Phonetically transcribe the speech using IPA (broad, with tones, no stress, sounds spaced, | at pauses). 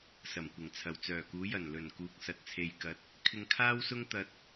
s ɐ˨˩ m kʷ ɪ˨˩ ŋ t͡sʰ ɐ˨˩ w t͡s œː˨˩ k uː˨˧ j ɐ˨˩ n l ɵ˨˩ n k uː˨ k̚ s ɐ˨ t̚ t͡sʰ e˨ j k ɐ˨˥ t̚ | kʰ ɪ˧ ŋ kʰ aː˥ w s ʊ˥ ŋ t̪ ɐ˧ t̚